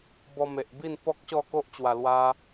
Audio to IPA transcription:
bɔ˧me˨ʔbi˥˧n pɔ˦k̚ ɕɔ˥˧ko˦ʔt͡ɕwa˨˩ lwa˧

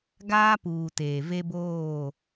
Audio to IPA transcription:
ɡaː˦puː˨ teː˨ve˦boː˦˨

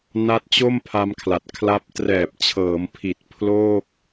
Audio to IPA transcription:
na˦˥t̚t͡ɕo˥˩m pʰa˧mkʰla˨˩t̚ kʰla˦˥p̚ trɛː˨˩p̚t͡ɕʰɤː˩˦mpʰi˨˩t̚ pʰloː˥˩k̚

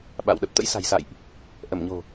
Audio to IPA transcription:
ɓa̰˧˨w ɗə˨˩p̚t̪ə̰˧˥jsa̤˨˩jsa̰˧˨jʔ | ʔə˧˩mɲo̤˨˩

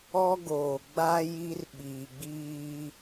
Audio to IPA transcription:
ɔ˦ɡoː˨ ɡ͡ba˦ ji˦rɓiː˨ɡ͡biː˦

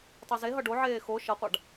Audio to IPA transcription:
tˤozeɦʌ ɖoʕeː xo ʃʌqʷaɖ

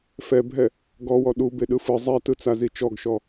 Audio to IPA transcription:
fɛbʱɛ | ɡɔwɔ ɗubeɗɯ fɯ zˤɛtɯt͡sazi t͡ʃɔɡʃɔ

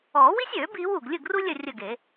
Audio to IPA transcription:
ɔː˨˩˦wi˥sʲøː˨˩˦biː˨˦w u˨˩ɡ lʲɯ˥˨ɡru˥lʲə˥˨ rʲə˥˨ɡe˨˩˦

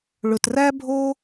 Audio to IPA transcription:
ɭɵ˧træ˥bʱo˥

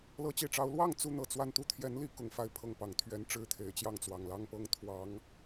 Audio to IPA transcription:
lɤ˧˥t͡ɕi˨˩ʈ͡ʂɑ˧˥ʊ̯ lwɑ˥˩ŋ t͡su˥n̪ɤ˨˩t͡swa˥˧n t̪u˥˩t̪ʰjɛ˧˥nli˧˥ kʊ˨˩ŋ fa˥˧ɪ̯pʰɤ˥˩ŋ pɑ˨˩ŋt̪ʰɥɛ˧˥n ʈ͡ʂɻ̩˥t̪ʰe˨˩ɪ̯t͡ɕjɑ˥˩ŋt͡swɑ˨˩ŋ lɑ˥˧ŋpɤ˥˩ŋ t̪ʰwɑ˧˥ŋ

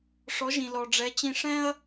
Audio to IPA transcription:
ʂɔ˩˥ʒĩ˩ lɔ˩ɖ͡ʐɛ˩˥t͡ɕĩ˧ ʂɛ̃˥ɐ̯

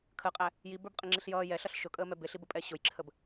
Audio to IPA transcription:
kʰəqʼæ | jibə˞bqʼɪŋ͡ǁiɬ jʌː jɛɬʌɬ ʃʊkʼəːmɛ bɪɬibəpʼɛ ɕʊjǁʰəb

